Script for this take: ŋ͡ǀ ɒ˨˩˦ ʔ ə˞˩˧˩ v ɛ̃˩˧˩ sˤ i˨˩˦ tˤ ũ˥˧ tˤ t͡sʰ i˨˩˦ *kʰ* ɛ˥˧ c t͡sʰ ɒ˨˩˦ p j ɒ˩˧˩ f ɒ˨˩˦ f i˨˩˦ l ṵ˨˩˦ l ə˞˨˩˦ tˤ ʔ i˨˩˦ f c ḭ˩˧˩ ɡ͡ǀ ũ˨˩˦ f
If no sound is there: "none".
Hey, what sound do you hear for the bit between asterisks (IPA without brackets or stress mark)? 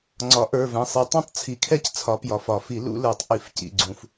kʰ